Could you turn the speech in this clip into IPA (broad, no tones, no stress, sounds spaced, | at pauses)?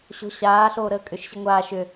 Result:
ɕ o̤ ɕ aː ɬ oː ɾ əː kʼ ʏ ʃ ɕ i ŋʷ aː ʃ ʏ